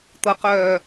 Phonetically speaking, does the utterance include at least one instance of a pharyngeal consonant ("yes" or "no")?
no